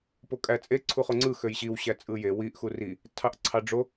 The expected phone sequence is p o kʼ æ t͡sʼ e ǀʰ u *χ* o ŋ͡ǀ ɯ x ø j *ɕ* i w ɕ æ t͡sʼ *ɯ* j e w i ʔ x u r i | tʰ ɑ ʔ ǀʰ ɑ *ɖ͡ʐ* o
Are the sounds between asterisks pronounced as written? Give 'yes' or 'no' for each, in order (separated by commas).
yes, yes, yes, yes